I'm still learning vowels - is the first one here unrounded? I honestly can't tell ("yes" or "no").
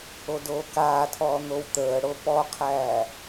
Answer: no